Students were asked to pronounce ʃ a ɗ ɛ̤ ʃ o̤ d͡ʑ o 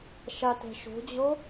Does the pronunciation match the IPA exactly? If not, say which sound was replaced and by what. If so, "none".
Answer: ɗ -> t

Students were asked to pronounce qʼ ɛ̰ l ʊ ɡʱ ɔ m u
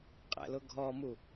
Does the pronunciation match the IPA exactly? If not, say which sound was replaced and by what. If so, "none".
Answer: none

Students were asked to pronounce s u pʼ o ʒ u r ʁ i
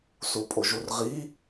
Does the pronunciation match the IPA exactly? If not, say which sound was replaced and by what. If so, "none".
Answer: none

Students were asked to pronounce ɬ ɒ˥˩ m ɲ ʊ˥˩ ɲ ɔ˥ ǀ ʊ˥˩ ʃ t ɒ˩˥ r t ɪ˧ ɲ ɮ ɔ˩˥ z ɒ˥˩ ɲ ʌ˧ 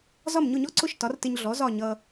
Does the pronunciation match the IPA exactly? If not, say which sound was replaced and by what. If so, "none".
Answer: ɬ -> z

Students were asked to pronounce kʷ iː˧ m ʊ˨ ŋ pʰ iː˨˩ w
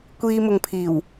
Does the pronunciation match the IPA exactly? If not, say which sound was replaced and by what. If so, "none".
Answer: none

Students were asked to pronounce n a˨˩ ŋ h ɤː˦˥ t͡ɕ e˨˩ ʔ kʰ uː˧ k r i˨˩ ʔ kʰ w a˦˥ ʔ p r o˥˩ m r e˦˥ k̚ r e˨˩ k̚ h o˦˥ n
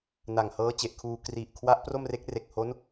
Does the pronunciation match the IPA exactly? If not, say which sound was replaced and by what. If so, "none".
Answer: none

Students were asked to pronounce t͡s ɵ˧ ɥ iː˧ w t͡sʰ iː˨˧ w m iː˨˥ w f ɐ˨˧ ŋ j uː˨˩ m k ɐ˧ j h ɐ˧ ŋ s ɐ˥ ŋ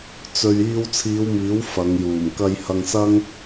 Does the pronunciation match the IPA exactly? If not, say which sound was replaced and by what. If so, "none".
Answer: none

